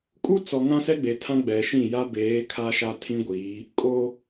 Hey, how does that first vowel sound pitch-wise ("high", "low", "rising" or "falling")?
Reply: high